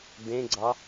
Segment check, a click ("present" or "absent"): present